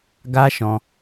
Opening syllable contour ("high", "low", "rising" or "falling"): high